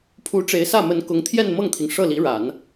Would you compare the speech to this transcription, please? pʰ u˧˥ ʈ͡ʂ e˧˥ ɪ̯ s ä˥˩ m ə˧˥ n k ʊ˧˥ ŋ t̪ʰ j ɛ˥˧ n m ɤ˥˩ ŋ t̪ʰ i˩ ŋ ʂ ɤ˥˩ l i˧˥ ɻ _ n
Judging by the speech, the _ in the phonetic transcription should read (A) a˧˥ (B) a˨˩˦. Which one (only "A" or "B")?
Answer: B